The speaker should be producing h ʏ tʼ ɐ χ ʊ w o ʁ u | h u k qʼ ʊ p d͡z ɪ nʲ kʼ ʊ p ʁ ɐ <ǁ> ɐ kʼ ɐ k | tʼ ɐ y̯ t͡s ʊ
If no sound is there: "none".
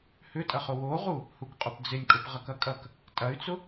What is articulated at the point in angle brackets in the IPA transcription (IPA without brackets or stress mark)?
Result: k